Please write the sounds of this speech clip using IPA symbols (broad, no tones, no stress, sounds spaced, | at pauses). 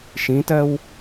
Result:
ʃ ĩ t ɜ w